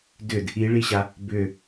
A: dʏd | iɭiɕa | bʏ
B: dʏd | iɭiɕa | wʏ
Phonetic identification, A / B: A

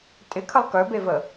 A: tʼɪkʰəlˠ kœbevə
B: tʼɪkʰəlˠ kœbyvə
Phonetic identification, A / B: A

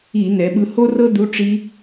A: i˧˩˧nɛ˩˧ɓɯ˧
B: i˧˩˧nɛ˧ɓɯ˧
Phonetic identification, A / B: A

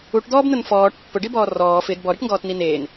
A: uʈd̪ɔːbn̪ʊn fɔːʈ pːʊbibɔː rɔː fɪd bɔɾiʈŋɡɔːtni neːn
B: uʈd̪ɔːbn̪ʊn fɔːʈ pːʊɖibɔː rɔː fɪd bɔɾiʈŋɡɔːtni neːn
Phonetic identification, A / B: B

